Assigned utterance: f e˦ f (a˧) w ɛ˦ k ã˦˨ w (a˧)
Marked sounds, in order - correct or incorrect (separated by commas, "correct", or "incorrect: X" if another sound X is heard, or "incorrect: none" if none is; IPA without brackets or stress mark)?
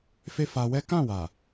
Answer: correct, incorrect: a˨